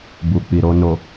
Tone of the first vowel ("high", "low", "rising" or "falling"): low